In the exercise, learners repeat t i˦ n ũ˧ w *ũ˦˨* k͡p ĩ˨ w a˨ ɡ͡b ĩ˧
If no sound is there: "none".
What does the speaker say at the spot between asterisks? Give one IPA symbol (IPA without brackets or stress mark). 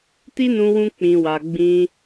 ũ˧